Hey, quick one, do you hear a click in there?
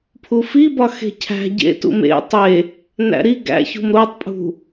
no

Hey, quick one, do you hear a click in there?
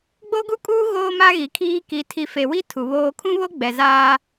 no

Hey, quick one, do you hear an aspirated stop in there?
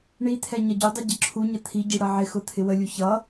yes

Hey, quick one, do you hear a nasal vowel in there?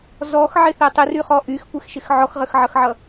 no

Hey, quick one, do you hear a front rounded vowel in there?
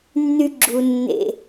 yes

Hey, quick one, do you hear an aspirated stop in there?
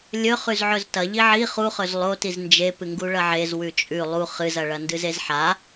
no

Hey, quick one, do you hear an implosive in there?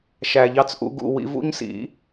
no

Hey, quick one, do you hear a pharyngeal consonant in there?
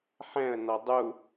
yes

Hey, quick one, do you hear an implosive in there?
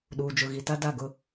yes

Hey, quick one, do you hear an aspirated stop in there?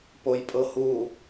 no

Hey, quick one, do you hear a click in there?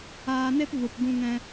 no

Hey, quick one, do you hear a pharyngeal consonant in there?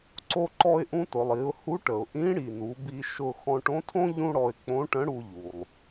no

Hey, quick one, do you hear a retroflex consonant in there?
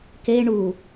yes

